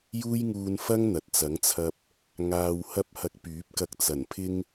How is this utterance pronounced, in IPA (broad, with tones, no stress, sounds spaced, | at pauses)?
j uː˥ j ŋ uː˧ n f ɐ˥ ŋ n̪ ɐ˨ t̚ t͡s ɐ˨˥ ŋ t͡sʰ ɐ˧ p̚ | ŋ aː˧ w h ɐ˥ p̚ h ɐ˧ k̚ p yː˨˥ p̚ k ɐ˧ k̚ t͡s ɐ˨˩ n pʰ ɪ˥ ŋ